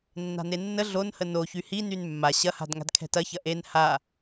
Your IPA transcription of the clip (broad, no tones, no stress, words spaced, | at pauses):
nːa̤nenːə ɮonhə no çyhi nynmːa ɕɐha̤d ŋa̤dkʰɛ̤tɐçɐ ʔen ha